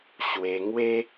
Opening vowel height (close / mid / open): mid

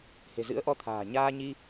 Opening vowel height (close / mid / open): mid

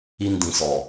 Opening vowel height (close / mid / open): close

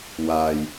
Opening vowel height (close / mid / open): open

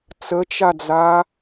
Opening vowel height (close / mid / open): mid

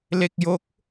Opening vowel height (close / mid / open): mid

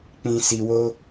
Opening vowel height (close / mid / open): close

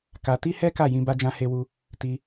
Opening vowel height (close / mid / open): open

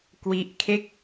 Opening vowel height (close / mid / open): close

